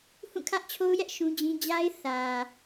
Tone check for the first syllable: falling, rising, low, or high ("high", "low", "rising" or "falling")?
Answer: falling